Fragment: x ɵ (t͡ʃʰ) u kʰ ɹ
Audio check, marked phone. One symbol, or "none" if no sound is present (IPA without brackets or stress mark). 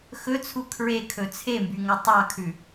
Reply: t͡sʰ